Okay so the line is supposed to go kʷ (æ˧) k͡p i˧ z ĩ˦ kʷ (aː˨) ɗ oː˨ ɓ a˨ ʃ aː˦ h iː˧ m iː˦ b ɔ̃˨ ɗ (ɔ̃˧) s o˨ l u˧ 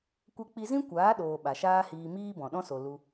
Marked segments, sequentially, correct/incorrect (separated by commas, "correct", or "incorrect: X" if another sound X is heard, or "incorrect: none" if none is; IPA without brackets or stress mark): incorrect: ɛ˧, incorrect: aː˨˦, incorrect: ɔ̃˦